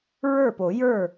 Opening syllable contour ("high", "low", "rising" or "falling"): falling